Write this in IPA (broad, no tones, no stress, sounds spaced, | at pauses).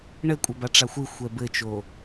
ɳ ɘ kʷʼ a b a ʈ͡ʂ a xʷ ɨ xʷ ɛ b ɘ t͡ʃ o